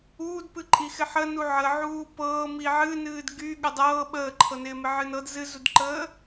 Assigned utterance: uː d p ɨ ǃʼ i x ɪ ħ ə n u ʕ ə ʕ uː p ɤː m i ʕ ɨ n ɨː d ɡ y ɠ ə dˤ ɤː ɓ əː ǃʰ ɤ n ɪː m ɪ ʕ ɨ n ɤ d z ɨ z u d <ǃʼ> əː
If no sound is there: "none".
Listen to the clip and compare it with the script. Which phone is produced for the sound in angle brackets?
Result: ǃ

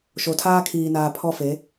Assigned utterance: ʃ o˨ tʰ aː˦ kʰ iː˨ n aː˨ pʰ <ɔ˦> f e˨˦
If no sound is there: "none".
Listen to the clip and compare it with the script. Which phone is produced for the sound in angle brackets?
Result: ɔ˦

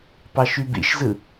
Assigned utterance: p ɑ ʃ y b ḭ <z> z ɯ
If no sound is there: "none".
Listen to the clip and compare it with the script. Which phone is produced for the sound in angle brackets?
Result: ʃ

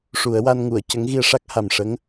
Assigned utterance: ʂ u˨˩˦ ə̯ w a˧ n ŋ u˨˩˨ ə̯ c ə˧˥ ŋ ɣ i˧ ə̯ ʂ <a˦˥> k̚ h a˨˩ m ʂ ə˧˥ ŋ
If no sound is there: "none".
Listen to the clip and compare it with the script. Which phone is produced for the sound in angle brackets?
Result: a˦˥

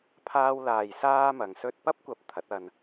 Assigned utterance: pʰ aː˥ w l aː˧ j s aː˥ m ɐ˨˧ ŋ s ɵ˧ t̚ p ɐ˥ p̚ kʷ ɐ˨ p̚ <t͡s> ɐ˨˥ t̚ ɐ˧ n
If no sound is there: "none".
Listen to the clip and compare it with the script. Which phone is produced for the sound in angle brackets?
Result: t̪ʰ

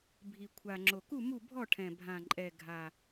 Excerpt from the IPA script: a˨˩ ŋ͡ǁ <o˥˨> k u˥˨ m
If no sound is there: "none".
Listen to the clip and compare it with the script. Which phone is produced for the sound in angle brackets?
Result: o˨˩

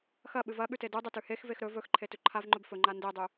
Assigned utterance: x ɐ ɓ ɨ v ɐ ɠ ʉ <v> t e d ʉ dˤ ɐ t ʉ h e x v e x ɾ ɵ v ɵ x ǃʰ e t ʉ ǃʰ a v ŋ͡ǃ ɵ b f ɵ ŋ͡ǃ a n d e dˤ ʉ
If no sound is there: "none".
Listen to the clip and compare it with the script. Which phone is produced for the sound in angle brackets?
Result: none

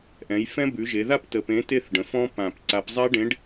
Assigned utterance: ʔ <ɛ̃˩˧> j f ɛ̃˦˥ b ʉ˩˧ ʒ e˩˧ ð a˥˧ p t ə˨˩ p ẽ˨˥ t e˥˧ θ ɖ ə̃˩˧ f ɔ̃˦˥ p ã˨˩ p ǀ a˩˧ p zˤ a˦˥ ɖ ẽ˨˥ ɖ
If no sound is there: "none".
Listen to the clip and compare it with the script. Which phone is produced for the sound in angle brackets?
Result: ɛ̃˩˧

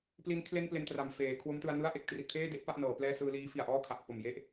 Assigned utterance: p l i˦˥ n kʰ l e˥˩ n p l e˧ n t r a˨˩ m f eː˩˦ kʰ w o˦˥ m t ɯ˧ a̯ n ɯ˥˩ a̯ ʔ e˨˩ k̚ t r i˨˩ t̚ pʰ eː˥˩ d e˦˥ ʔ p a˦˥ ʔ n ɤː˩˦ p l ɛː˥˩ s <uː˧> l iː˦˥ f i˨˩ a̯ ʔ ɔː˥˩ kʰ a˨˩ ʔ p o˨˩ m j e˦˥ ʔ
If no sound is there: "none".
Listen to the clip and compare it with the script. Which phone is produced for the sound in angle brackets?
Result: ɯː˧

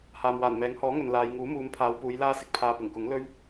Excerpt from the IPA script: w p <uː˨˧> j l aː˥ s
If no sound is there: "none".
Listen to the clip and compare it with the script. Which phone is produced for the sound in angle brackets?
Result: uː˨˧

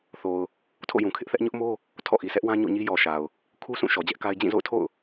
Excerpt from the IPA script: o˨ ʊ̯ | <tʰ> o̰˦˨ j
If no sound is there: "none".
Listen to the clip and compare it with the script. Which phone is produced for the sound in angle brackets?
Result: tʰ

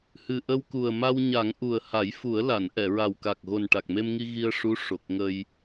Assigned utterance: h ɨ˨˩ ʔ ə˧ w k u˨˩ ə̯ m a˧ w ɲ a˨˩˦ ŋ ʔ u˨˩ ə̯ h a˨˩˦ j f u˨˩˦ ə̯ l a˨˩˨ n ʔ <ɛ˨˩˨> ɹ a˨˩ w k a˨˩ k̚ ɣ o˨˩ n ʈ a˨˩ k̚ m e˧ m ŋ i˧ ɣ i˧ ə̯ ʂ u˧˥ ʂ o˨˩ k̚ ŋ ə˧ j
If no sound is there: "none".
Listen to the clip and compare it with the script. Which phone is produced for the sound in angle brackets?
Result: ɛ˨˩˨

